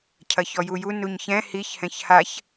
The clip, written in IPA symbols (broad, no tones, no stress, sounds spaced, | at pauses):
cʰ ɐ ç ɔ j u j u n u ɲ ç ɛ̃ h i ç h ɛ̃ ç h a ç